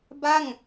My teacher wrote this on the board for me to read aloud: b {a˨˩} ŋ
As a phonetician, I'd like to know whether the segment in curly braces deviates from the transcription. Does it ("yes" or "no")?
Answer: yes